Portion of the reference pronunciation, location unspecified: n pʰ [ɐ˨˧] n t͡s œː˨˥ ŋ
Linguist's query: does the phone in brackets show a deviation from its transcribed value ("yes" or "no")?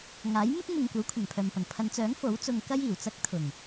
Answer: no